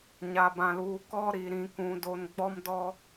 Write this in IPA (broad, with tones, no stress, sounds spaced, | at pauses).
ɲ a˨ b ã˨ l uː˨ k ɔ˦ ɾ i˨ ɾ ĩ˨ k ũ˨ d o˨ n ɡ͡b ɔ˦ m d ɔ˦